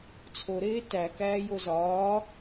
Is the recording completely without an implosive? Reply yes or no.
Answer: yes